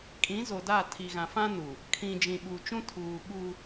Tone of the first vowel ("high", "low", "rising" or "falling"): rising